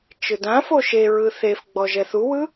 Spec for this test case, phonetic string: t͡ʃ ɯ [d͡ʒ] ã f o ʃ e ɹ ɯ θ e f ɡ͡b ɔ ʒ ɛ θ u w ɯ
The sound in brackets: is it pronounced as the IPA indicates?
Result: no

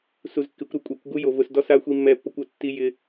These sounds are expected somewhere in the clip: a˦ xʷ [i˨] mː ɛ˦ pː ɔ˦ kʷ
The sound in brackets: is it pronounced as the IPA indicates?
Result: no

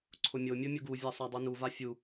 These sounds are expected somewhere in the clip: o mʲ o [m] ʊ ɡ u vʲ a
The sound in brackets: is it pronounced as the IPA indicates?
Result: no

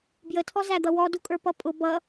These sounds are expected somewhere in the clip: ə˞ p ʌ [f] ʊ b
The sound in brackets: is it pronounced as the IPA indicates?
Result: no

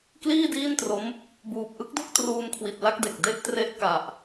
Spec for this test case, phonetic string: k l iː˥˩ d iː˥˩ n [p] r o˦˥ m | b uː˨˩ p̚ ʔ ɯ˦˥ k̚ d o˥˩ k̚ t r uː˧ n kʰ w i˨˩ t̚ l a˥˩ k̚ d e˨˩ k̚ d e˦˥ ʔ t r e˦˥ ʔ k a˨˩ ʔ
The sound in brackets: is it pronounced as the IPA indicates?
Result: no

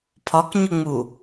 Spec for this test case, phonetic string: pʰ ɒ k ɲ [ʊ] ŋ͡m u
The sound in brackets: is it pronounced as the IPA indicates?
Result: yes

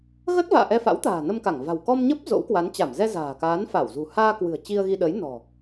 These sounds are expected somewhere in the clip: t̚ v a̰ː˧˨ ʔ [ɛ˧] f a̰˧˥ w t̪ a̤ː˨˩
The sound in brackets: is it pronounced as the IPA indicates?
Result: yes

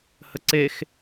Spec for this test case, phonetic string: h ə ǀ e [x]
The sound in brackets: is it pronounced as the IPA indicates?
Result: yes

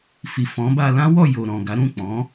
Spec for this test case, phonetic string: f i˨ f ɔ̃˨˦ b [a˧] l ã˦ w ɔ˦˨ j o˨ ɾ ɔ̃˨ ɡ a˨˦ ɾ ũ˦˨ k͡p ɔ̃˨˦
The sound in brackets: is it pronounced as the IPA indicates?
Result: yes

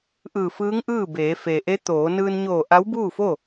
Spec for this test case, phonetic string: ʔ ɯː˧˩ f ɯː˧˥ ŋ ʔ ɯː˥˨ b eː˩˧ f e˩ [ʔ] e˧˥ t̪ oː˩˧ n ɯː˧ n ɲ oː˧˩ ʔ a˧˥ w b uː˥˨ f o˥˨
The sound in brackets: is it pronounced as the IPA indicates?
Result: yes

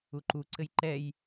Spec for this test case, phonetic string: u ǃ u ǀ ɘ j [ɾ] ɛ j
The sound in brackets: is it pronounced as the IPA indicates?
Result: no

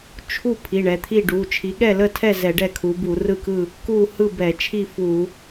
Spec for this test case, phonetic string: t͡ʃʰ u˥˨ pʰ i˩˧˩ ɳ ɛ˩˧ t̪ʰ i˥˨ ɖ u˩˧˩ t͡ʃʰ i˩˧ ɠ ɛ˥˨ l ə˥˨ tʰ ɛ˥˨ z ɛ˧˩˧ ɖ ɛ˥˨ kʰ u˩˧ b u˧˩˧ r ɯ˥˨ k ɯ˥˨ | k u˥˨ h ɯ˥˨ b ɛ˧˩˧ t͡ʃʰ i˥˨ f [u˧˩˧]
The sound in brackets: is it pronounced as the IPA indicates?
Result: yes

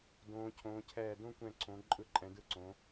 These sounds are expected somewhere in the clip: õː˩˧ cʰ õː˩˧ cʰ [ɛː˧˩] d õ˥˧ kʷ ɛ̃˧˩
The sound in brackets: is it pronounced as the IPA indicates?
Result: yes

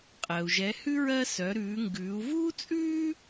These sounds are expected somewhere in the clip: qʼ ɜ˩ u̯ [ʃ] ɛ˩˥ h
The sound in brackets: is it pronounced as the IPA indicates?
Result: no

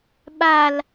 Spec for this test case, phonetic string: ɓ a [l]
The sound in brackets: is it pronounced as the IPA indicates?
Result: yes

